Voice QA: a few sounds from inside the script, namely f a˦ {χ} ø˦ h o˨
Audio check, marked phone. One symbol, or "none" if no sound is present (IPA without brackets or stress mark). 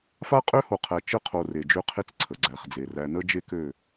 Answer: qʼ